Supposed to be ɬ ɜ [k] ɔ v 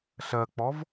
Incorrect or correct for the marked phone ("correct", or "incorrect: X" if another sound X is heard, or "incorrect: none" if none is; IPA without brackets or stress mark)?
incorrect: k͡p